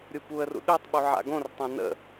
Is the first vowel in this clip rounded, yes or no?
yes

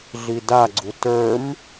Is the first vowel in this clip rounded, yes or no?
no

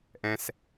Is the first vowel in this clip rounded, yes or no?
no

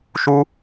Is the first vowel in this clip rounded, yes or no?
yes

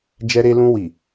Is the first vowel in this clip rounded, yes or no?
no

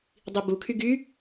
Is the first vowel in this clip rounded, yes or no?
no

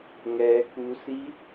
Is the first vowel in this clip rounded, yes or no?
no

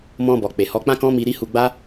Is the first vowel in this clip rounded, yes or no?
yes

